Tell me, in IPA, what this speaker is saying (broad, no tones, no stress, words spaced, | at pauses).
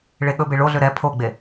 ɭeɠɵbe ɭoɮʏ ɾɛ pʰoɡ͡be